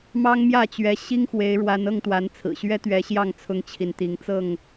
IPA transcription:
m ɑ˦ ŋ m j ä˥˨ t͡ɕ ɥ ɛ˨˦ ɕ i˦ ŋ x w e˨˦ ɪ̯ ɻ w a˨˦ n ɤ˥˨ ŋ t̪ w a˨˦ n t͡sʰ ɹ̩˨˩ ɕ ɥ ɛ˦ t̪ ɥ ɛ˨˦ ɕ j ɑ˥˨ ŋ t͡sʰ ʊ˦ ŋ t͡ɕʰ i˨ n t̪ i˨˦ ŋ t͡s ɤ˥˨ ŋ

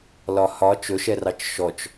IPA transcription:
l ɒ h ɒ t͡ʃ ɵ ʃ ɛ r ɑ t͡ʃ ʃ ɔ t͡ʃ

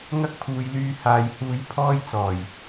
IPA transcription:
ŋ ɐ˥ k̚ pʰ uː˨ j l yː˧ h aː˨ j h uː˧ j pʰ ɔː˥ j t͡s ɔː˨˩ j

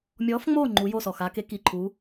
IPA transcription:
mʲ ɔ˧˥ f ŋ͡m o˥˧ ŋ͡ǃ u˧˥ j o˥˧ s ɔ˧˩ x a˧˥ k e˧˥ k i˧˩ ǃʰ u˧˥

